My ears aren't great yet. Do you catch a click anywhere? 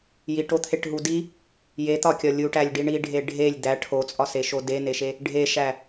no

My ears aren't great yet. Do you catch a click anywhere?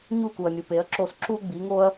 yes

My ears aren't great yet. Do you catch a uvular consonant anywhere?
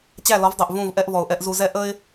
no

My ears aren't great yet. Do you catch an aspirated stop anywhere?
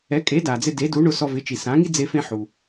no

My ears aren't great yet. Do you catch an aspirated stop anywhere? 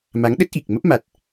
no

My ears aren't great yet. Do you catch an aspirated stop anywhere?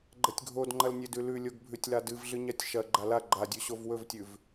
no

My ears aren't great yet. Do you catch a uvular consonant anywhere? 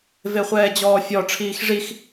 yes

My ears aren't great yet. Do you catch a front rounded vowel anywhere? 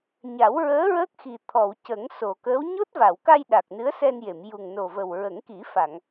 no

